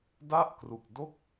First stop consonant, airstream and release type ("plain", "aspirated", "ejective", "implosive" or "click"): plain